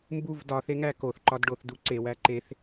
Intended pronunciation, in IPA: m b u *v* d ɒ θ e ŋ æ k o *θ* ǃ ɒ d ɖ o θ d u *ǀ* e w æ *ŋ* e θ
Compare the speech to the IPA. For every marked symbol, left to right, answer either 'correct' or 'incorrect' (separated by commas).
correct, correct, correct, incorrect